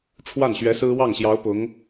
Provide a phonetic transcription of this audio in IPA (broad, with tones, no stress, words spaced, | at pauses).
ʈ͡ʂʰwa˥˩nɕɥɛ˧˥ sɹ̩˥ wɑ˥˩ŋɕjɑ˧˥ʊ̯ pʊ˧˥ŋ